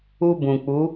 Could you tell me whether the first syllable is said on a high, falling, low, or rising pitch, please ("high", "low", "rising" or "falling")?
high